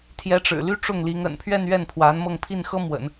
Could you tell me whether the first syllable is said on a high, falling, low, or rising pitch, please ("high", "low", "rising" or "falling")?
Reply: rising